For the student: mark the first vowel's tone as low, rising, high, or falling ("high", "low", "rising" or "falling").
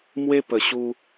high